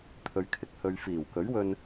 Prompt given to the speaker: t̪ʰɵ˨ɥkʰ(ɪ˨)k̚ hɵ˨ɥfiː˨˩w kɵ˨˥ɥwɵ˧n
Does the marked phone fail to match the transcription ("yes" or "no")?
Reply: no